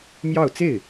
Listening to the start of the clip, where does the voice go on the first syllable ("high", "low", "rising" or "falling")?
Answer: falling